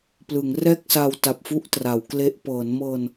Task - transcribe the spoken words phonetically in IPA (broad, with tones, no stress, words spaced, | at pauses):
plɯ˩˦ŋrɛː˥˩k̚sa˧w ta˨˩p̚fu˥˩ʔtra˩˦wkle˦˥ʔ pɤː˩˦nmɤː˧n